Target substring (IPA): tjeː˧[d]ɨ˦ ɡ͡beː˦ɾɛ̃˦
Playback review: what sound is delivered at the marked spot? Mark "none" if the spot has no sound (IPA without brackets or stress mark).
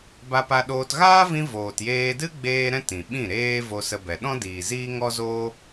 d